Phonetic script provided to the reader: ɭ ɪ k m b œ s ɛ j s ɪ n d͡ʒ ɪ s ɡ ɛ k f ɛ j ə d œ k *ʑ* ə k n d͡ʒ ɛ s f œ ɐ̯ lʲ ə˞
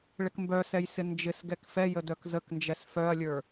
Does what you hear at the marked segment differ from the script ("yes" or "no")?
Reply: yes